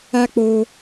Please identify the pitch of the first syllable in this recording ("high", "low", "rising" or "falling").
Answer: high